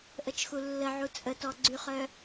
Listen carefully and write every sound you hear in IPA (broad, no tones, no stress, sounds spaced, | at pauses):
ʔ ə t͡ʃ x u lː ə ʕ u t͡sʼ ə t ɔ ɡ͡ǀ y χ œ